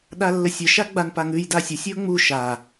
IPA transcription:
ɗ a lː ə sʲ ə ʃ a ɡ͡b a n p a ŋ ʉ j d a sʲ ə sʲ ə ʊ̯ ŋ͡m u ʃ a

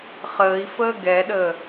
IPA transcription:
χ əː i̯ f əː ɡ ɛ ɗ əː

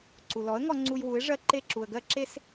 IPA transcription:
ǀ u˩ l ɔ˩˥ ə̯ ŋ ɔ˧ ŋ͡ǀ u˧ j w u˩˥ ɪ̯ ʐ ɜ˥˩ ǃ e˥˩ ǁ u˩ ə̯ ɡ ɜ˥ ǁ e˥ s

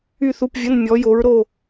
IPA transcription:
y˥˨ θ u˧˥˧ p vʲ ə˧˥˧ n mʲ ɔ˨˥ j o˨˥ ɹ ɾ o˥˨

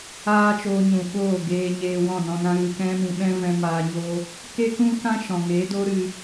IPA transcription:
aː˦ t͡ʃ oː˧ ɲ ũ˨ ɓ oː˦˨ ɡ eː˧ ɲ eː˧ w ɔ̃˦˨ n ɔ̃˧ n ã˦ ɣ ɨ˧ k ɛ̃˦ m ĩ˧ ɓ ɛ̃˦ v ɛ̃˦ m aː˧ ɲ o˦ | k e˦ k ũ˦ k ã˦ ʃ ɔ̃˨ ŋ eː˨˦ d oː˦ ɾ ɨ˧

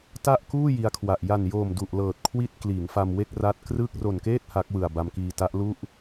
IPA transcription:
t a˥˩ ʔ k uː˥˩ j i˧ a̯ kʰ w a˨˩ ʔ j a˨˩ n j oː˨˩ m d u˨˩ ʔ l ɤː˨˩ t̚ kʰ w i˥˩ t̚ k l iː˩˦ ŋ f a˧ m w e˥˩ k̚ r a˦˥ t̚ k r ɯ˥˩ k̚ r o˨˩ n k eː˥˩ t̚ h a˦˥ k̚ w ɯ˨˩ a̯ b a˧ m k iː˧ t a˦˥ ʔ l u˥˩ ʔ

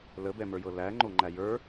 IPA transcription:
l ə b ɛ m ə˞ j ɤ l æ ŋ͡ǃ o ŋ͡ǃ æ j ə˞

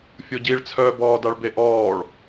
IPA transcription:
fʲ o ɟ i ɭ t͡sʰ œː b ɔː d a ɭ b e ʔ ɔː ɭ

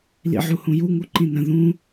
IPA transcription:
l ḭ ʕ u h ũ j u ŋ u ǃ ĩ n ə̃ ð ũ

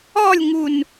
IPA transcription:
ɔ lʲ ŋ u n

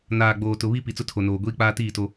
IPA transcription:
n aː˨ ɡ͡b oː˨ t ʊ˨ β i˦ p i˨ t͡s ʊ˦ tʰ o˨ n oː˨ ɡʷ iː˦ k͡p aː˦ t iː˦˨ t o˦

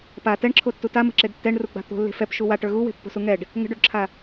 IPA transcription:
p a t ɛ ɳ ǁʰ o tː u t a m ə̤ ǁ e d tː ɛ ɳ r u ɡ͡b a̤ t̪ o̤ lː e̤ f ɛ p ʃ u w a ʈ ə˞ ɣ u w e̤ pː o̤ s u ŋ ɛ ɖ | ŋ ə̤ ɖ o ɖ ǁʰ a

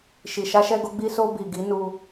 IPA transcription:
ʃ i˨ ʃ a˧ ʃ ɛ˧ ɡ o˧ ɡ͡b i˧ s o˧ b i˨ ɡ i˨˦ n u˧

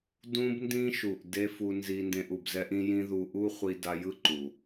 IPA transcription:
d ũ˦ b n d ĩ˦ ʃ u˨ ʔ d e˦ f u˧ n z i˧ n d ẽ˧ ʔ u˨ b z ɛ˦ ʔ ĩ˦ j ĩ˦ ð u˧ ʔ u˦ χʷ i˧ d a˧ j ɯ˦ ǃ u˨

